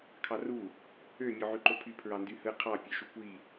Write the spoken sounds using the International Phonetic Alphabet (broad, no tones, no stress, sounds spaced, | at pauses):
kʰ ɑ r u | ø mʲ o ʕ y ǃ o pʰ y pʰ ɹ ɑ n d y h ɯ qʰ ɑ pʲ ø ʃ u kʷ i